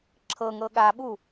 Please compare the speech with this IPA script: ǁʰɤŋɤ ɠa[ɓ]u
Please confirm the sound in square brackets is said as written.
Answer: yes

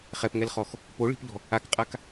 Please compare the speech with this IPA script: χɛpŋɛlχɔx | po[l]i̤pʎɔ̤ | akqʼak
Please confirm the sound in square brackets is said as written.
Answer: no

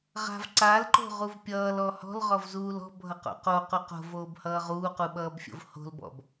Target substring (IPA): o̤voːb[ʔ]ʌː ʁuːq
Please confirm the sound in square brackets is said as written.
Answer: no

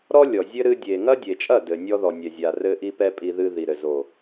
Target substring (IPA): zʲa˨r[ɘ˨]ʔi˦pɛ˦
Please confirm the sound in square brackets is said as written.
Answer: no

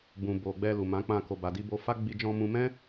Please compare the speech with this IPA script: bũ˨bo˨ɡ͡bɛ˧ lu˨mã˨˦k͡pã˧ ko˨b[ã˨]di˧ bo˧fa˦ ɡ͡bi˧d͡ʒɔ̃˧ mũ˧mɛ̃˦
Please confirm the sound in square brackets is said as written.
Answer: no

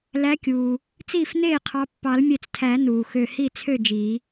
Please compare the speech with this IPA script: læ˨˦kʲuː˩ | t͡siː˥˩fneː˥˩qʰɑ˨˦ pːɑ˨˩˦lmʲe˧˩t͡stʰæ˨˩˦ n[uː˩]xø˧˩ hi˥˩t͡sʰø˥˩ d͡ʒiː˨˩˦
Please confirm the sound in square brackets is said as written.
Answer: yes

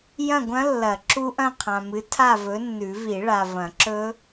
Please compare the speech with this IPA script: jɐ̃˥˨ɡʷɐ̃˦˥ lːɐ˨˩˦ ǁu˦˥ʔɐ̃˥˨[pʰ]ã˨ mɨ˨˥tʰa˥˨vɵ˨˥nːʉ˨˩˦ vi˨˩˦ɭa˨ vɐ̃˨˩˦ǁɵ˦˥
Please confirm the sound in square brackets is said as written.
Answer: no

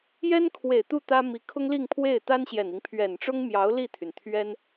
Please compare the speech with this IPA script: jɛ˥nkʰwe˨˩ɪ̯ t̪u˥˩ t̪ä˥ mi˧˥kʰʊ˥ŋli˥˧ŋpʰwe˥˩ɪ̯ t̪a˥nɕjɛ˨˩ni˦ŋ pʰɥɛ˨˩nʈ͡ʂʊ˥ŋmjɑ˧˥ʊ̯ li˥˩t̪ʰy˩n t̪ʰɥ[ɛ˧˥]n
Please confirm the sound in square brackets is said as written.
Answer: no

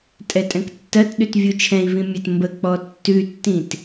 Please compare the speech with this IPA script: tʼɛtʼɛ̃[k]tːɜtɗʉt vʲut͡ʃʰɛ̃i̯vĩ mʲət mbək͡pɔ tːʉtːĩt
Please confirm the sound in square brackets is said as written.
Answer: yes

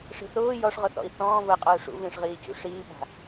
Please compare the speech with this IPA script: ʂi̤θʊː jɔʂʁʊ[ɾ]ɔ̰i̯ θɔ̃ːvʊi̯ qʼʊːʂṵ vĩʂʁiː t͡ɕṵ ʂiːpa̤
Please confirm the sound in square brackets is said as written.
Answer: no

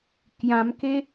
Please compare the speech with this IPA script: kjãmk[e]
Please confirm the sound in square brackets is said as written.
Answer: yes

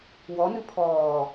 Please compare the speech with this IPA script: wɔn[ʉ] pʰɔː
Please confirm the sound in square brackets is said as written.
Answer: yes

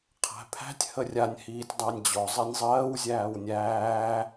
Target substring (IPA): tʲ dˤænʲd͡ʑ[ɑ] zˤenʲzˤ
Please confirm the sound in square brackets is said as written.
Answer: no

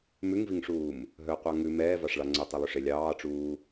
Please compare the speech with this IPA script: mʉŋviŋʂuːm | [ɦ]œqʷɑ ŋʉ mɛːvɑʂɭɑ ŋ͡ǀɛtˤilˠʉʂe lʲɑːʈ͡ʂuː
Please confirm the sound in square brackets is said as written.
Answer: yes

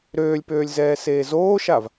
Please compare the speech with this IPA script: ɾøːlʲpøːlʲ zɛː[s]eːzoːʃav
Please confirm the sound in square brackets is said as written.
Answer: yes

